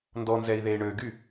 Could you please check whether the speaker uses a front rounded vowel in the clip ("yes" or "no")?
yes